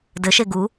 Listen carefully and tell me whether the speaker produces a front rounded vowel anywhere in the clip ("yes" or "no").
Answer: no